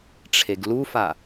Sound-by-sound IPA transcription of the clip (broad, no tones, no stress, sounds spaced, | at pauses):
ʈ͡ʂʰ e ɡ l u f a